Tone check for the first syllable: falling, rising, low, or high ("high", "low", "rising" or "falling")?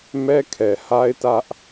high